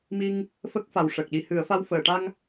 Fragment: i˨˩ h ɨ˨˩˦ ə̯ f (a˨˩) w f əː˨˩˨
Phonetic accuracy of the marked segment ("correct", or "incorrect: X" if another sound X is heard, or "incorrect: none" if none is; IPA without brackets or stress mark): incorrect: a˧